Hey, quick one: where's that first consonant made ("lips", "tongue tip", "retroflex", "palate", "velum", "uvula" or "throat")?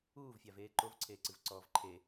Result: lips